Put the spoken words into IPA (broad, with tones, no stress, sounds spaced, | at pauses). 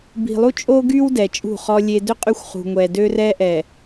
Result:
b i̤˨ lˠ u˦ t͡ʃʼ o˦ ɡ y˦ w d ɛ˨ t͡ʃʼ ṳ˦˨ χ ɔ˦ lʲ e˦ d ø˦ qʼ y˦ xʷ χ ṳ˨ ŋʷ ɛ˨ d ø˦ r ɛ˦ ʔ ɛ˨